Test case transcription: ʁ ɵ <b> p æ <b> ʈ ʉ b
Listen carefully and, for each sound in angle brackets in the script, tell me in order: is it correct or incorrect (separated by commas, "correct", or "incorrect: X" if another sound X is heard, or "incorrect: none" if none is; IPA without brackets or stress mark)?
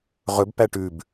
correct, incorrect: none